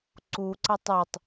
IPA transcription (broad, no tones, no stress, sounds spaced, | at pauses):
ǀ u ǀ a tˤ e tˤ